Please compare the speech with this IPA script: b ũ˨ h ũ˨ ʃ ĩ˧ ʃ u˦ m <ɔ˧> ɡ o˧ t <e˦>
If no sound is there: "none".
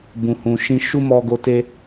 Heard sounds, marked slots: ɔ˧, e˦

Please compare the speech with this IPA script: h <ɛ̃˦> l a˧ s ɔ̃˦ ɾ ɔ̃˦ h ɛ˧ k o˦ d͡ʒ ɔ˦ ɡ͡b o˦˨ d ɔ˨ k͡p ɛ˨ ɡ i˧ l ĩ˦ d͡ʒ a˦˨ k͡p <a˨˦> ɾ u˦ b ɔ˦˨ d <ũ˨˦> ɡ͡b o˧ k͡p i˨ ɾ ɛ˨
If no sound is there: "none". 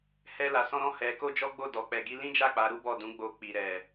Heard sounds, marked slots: ɛ˦, a˨˦, ũ˨˦

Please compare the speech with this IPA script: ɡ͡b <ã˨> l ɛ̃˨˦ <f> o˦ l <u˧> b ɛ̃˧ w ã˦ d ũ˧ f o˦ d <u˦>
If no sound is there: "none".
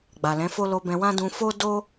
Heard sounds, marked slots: a˨, f, o˧, o˦

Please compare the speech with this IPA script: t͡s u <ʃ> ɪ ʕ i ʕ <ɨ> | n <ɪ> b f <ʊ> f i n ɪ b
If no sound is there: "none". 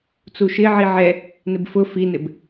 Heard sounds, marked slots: ʃ, ɛ, ɪ, ʊ

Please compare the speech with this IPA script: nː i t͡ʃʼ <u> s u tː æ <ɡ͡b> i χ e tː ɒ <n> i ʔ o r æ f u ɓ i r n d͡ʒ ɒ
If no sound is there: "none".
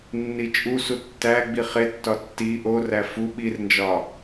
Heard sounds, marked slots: u, ɡ͡b, tː

